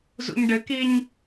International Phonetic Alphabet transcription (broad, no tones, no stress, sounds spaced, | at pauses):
z ṵ ɲ ɖ ɘ k i ɲ